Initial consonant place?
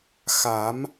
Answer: velar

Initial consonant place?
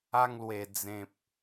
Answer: velar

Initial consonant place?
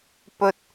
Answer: labial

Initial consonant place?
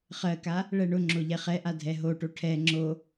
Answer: uvular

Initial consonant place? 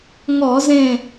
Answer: velar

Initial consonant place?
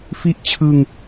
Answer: labial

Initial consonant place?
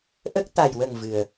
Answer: glottal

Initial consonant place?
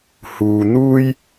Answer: glottal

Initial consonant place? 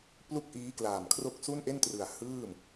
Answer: labial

